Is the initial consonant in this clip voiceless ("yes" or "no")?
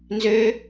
no